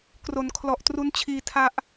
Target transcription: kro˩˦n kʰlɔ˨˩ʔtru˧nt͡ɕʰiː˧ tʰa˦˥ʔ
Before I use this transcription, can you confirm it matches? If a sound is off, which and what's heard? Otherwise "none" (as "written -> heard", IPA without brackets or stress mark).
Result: none